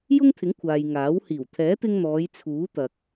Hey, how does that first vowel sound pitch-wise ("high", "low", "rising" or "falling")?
high